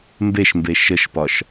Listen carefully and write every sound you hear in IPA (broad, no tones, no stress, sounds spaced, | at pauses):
m b e ʃ m b e ʃ ə ʃ p ɒ ʃ